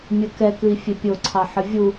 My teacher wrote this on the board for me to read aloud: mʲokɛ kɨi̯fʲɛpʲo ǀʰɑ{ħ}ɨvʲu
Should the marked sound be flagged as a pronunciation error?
no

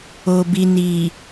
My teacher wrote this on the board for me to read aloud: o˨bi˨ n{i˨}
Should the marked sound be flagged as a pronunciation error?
no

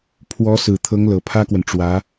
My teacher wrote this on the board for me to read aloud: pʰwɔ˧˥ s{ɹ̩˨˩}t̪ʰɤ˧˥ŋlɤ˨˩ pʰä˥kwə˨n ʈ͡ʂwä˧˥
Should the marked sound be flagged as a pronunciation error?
no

